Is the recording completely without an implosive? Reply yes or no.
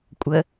yes